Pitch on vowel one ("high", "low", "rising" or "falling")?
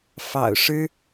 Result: low